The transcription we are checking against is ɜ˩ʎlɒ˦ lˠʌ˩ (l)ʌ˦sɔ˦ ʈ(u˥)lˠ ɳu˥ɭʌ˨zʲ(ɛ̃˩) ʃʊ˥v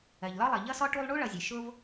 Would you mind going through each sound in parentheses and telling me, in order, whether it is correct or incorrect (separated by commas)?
incorrect, correct, incorrect